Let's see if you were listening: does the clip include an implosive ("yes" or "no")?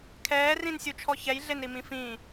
no